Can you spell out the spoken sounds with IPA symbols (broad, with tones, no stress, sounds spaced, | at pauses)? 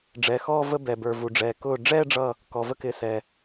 ɖ͡ʐ ɛ˩˧˩ x ɔː˥˧ v ə˥˧ b ɛ˩ b ə˞˩ v u˩ ɖ͡ʐ ɛː˩ k ʊː˧˩ ɖ͡ʐ ɛː˥˧ ɖ͡ʐ ʌ˧˩ | k ɔ˩ v ə˥˧ k ɪ˩˧˩ s ɛː˩